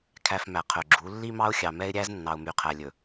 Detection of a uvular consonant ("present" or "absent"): present